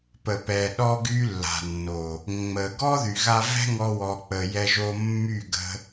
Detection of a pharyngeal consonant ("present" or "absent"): absent